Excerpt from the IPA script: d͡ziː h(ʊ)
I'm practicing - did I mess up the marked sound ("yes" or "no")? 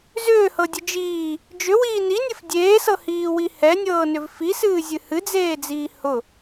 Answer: no